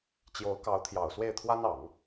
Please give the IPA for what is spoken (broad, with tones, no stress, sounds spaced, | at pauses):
t͡ɕ j o˧˥ ʊ̯ k ɑ˧˥ ʊ̯ t̪ʰ j ɑ˨˩ ʊ̯ s w e˥˩ ɪ̯ t̪ʰ w a˥ n ɑ˨˩˦ ŋ